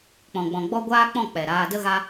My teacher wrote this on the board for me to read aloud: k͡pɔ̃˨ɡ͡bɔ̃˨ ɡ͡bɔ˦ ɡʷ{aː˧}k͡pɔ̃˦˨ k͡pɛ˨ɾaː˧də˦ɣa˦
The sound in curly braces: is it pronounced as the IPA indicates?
no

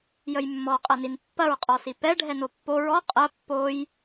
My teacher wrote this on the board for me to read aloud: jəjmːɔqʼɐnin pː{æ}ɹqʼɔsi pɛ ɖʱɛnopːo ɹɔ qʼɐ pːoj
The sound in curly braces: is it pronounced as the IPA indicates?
no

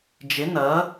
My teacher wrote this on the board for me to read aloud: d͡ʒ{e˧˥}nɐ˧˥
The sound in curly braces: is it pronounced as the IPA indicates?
yes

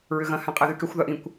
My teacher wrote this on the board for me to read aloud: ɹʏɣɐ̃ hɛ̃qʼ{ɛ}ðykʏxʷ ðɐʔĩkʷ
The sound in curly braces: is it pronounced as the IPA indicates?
yes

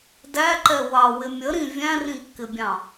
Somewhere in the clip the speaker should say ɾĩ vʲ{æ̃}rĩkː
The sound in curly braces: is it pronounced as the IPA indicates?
yes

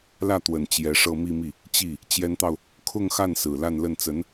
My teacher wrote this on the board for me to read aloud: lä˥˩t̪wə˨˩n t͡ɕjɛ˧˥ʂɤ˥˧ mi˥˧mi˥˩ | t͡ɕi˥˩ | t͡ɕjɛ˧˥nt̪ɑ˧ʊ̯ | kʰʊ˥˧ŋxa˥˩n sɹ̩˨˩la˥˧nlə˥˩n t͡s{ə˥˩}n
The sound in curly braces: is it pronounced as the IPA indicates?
no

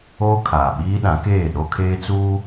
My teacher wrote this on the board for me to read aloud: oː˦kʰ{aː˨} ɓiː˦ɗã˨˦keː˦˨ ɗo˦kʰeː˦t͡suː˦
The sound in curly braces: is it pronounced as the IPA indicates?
yes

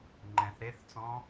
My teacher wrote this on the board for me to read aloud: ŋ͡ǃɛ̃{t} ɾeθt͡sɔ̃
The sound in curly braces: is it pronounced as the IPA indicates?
no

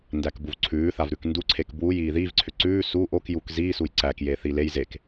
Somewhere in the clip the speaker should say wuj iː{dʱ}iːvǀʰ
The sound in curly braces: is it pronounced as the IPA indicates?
no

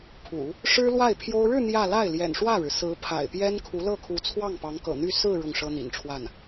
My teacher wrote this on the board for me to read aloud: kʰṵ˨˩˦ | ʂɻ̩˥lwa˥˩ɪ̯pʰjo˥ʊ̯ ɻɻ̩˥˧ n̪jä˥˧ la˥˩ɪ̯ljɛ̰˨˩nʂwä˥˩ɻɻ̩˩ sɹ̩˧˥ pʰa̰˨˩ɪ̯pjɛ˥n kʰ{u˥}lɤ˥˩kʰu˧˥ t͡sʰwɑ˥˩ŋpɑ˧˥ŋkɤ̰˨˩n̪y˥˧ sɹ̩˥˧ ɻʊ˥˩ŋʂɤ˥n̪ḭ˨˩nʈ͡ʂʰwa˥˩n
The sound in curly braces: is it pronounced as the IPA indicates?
no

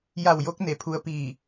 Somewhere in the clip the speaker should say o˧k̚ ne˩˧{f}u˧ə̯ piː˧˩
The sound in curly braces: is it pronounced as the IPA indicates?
no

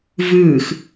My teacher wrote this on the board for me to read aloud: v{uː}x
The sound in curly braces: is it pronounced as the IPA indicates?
no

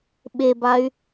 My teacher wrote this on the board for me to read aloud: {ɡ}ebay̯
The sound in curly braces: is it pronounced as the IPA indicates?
no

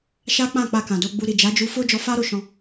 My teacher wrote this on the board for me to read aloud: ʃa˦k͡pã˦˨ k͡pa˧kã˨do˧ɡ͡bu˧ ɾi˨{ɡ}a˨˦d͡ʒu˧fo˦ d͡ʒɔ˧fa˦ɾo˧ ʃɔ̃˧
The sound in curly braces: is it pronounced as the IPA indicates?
no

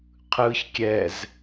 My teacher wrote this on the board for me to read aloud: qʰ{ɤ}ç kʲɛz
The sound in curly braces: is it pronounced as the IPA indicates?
no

